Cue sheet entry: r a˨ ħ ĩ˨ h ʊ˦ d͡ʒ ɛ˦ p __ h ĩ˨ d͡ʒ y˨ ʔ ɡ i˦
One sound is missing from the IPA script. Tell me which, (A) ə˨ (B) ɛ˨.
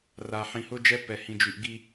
B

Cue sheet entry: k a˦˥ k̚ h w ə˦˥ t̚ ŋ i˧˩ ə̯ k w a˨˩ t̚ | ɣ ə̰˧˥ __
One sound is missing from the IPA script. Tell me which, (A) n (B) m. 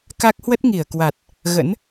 A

